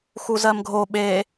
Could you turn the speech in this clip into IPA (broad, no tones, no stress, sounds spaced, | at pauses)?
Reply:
x u z ɜ m ɡʱ o ɓ e